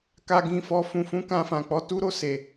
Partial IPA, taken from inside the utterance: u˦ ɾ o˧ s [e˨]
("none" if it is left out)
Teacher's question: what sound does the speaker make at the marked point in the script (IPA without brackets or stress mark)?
e˨